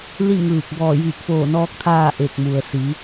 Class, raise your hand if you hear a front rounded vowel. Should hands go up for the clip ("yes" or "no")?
no